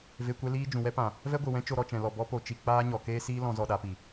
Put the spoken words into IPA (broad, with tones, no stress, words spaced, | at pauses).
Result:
ve˧kʷɛ˦liː˦ d͡ʒũ˨wɛ˦pã˨ | vɛ˦ɡʷɨ˨wɛ̃˦ t͡ʃo˧ɾɔ˧t͡ʃɛ̃˨lɔ˨ bɔ˦po˧t͡ʃi˧ k͡paː˦ɲɔ˨ keː˦siː˦lɔ̃˧ zɔ˧ɗa˨˦pi˨